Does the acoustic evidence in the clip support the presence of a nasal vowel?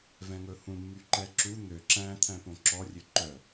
yes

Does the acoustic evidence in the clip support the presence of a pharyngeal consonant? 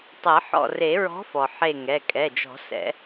yes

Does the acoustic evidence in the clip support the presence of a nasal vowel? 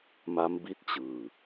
no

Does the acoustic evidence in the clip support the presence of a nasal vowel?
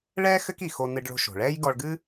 no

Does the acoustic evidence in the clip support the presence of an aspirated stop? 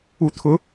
yes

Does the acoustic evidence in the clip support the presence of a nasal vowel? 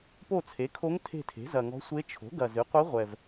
no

